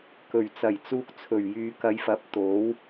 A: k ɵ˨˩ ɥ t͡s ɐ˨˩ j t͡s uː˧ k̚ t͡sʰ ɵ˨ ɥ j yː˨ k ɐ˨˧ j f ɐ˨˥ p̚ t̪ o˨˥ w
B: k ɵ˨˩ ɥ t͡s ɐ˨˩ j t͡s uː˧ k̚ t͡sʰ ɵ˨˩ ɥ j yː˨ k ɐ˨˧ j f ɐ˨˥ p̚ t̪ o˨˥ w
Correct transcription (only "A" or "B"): B